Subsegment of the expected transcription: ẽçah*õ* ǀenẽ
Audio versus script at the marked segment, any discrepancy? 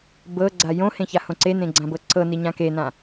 no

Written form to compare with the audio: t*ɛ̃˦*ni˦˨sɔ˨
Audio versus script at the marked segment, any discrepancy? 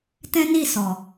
no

